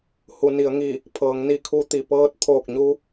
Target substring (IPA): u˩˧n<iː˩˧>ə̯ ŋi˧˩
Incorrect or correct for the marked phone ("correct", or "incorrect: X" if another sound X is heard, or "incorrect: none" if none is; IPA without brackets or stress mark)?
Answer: incorrect: i˩˧